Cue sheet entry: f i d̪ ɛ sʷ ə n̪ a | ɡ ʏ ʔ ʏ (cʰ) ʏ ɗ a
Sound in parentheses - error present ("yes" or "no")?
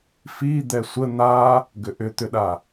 yes